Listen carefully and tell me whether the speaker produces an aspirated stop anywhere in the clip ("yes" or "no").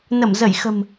no